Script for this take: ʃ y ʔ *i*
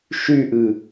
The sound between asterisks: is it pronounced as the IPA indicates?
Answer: no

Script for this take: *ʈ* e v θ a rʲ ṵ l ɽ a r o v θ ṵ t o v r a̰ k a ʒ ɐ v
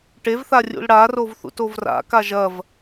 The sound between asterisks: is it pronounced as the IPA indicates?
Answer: yes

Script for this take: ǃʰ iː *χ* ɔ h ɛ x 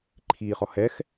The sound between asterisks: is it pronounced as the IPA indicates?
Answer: yes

